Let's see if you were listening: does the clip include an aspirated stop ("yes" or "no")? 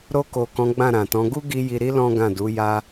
no